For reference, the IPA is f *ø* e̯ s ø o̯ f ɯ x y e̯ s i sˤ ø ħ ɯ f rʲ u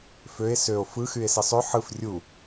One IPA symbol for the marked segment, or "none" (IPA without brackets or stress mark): ø